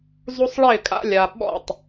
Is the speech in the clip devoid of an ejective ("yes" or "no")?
no